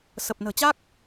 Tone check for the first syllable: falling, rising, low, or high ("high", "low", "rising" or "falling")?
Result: low